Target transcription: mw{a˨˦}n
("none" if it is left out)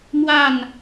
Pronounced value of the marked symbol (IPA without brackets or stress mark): a˥˨